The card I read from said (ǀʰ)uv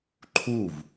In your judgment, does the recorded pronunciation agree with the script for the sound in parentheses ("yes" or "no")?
no